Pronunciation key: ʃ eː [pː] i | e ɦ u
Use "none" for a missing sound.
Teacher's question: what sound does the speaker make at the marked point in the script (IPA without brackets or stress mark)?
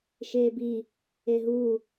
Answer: b